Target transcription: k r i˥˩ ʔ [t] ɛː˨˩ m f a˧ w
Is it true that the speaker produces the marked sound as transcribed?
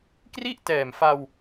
yes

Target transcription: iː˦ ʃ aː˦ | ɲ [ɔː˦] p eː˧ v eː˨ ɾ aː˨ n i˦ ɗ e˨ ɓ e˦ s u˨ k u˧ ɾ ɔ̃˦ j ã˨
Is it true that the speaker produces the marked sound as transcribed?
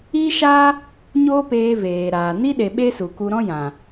no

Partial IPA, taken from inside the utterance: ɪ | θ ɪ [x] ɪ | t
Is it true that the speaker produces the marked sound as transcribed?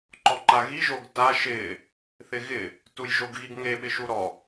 no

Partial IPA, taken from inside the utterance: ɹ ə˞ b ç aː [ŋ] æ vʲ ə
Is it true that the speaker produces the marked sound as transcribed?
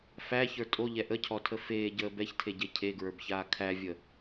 no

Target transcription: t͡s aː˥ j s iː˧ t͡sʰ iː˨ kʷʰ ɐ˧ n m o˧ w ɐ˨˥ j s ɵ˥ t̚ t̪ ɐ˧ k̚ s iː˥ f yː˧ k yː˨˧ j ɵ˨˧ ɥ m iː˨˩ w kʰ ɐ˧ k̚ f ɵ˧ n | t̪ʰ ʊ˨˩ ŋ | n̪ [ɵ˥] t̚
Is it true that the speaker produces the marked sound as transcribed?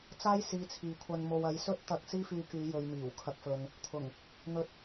no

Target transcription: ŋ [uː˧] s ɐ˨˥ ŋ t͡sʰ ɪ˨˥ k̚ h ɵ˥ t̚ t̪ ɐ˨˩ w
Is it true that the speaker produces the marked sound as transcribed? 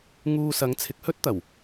yes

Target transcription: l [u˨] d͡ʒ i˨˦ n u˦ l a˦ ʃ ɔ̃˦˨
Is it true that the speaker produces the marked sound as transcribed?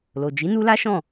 no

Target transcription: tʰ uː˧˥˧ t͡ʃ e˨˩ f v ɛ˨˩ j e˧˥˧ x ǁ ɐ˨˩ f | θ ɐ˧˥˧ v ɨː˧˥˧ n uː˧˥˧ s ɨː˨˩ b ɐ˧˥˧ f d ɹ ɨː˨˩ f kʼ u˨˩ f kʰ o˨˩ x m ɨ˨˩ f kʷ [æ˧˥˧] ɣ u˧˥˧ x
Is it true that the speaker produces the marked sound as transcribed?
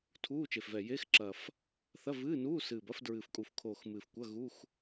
no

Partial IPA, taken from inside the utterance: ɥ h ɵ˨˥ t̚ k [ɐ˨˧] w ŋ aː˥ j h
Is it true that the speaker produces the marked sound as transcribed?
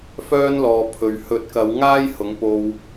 yes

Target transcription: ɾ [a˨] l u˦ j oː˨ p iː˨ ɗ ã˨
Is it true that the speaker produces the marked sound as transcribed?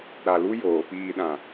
yes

